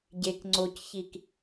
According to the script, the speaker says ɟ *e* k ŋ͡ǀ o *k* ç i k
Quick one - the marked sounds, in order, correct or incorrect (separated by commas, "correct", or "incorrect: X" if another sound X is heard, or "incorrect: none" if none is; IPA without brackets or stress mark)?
correct, incorrect: c